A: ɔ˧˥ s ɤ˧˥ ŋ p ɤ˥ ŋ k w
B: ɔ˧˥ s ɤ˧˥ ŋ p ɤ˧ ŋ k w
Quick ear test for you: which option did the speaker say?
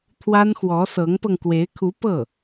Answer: B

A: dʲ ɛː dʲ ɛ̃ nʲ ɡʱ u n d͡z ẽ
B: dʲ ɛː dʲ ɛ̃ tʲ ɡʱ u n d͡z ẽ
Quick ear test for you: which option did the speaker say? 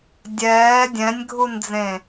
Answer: A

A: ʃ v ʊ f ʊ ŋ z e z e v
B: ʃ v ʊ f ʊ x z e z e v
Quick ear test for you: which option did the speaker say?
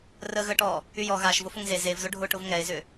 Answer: A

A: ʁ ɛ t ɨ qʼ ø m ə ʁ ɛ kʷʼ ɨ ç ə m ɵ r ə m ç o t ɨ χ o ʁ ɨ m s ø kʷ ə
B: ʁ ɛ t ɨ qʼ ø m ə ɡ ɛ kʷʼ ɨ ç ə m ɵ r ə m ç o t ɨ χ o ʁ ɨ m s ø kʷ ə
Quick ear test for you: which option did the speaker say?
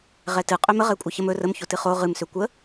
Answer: A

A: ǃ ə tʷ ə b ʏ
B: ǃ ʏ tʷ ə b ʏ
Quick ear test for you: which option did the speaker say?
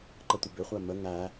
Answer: A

